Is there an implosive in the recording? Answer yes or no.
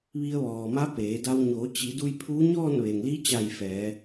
no